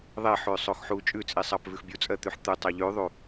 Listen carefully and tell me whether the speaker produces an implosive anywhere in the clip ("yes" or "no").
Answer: no